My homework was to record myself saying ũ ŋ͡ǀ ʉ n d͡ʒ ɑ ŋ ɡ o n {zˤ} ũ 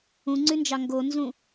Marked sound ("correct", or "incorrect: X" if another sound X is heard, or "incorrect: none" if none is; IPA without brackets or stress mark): incorrect: z